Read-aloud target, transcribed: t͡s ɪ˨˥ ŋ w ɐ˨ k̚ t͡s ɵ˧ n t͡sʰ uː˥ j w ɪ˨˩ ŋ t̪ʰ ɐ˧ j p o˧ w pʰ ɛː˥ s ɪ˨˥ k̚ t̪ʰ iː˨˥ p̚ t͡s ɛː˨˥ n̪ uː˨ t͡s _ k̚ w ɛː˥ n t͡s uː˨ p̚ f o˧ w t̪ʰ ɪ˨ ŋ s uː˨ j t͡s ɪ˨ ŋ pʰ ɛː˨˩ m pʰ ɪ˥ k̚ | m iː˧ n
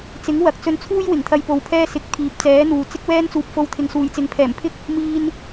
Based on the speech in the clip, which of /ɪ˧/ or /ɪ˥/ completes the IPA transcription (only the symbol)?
ɪ˥